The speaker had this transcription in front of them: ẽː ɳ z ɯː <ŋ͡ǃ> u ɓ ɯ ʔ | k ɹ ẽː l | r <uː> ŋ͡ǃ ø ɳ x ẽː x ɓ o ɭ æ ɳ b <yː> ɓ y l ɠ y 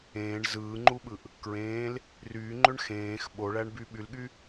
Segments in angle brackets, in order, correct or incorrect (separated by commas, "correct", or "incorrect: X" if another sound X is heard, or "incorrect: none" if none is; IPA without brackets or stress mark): correct, incorrect: yː, incorrect: y